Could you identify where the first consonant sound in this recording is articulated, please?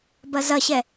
labial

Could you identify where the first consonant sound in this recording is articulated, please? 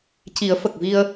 palatal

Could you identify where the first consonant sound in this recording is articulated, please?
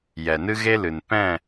palatal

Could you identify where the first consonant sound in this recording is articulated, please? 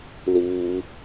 alveolar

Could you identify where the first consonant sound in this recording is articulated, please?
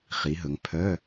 uvular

